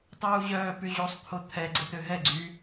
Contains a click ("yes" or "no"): yes